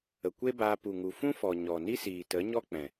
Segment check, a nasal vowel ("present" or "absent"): present